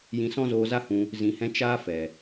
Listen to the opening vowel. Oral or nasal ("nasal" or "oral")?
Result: nasal